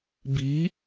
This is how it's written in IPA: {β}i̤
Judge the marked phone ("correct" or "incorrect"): incorrect